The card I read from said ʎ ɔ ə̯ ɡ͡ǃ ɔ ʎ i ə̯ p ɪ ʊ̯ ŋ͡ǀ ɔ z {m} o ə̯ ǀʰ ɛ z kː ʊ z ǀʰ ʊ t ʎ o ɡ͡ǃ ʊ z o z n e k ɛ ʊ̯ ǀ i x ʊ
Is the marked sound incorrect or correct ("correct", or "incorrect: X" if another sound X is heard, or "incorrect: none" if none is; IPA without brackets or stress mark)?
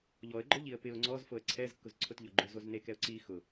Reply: incorrect: f